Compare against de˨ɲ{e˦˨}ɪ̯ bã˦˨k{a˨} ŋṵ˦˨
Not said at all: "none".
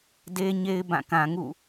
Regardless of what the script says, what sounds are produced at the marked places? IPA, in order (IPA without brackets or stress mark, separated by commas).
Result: e˨, ã˨